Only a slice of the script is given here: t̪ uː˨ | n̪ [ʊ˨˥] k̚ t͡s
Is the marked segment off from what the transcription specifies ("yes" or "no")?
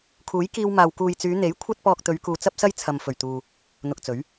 yes